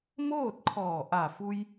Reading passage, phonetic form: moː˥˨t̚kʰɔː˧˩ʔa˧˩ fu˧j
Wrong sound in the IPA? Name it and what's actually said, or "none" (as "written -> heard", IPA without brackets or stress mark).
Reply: none